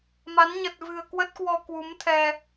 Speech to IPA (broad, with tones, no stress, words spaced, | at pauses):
ma˨˦n ɲə˨˩t̚vɨ̤˨˩ə̯ kwə˦˥t̚kwɔ˧ kwu˨˦mt̪ʰɛ˧